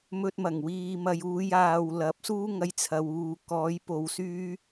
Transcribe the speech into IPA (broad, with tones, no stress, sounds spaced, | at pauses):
m ɵ˧ t̚ m ɐ˨˩ ŋ w iː˨ m ɐ˨ j uː˧ j aː˨ w l ɐ˨˥ p̚ s uː˥ ŋ ɐ˧ j t͡sʰ ɐ˨ w uː˨ k ɔː˨˧ j p o˨ w s yː˧